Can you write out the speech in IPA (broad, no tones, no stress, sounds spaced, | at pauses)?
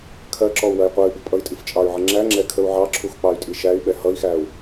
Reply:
kʰ ɜ ǁ ɔ u̯ w ɜ j qʷ ɜ y̯ b ʊ pʼ ʌ i̯ tʼ i f t͡ʃʼ ɑ y̯ ʕ ə ŋ͡ǁ æ ŋ͡ǁ ɛ kʰ ə u̯ ʕ ɑ ǁʰ u x k͡p ɑ y̯ tʼ i ʃ æ y̯ ɓ ɛ h ʌ i̯ x æ u̯